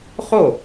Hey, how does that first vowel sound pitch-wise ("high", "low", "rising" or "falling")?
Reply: falling